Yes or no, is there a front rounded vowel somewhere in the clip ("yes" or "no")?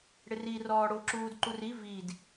no